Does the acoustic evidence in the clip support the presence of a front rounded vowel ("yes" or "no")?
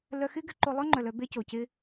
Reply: yes